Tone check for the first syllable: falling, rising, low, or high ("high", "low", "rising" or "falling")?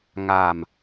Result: low